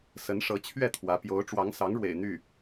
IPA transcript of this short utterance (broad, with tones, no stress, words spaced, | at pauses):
sə˧˥nʂɤ˧˥ t͡ɕʰɥɛ˥˩t̪ʰwä˧˥pjo˧˥ʊ̯ ʈ͡ʂwɑ˧˥ŋsɑ˧˥ŋɻwḛ˨˩ɪ̯ n̪y˥˩